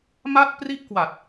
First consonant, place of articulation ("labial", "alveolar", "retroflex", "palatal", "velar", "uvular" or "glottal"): labial